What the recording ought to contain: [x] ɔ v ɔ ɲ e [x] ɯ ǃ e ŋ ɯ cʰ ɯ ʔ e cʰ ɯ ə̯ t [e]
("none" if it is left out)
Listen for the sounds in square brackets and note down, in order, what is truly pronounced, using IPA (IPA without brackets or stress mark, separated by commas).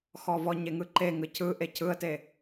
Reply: x, ŋ, e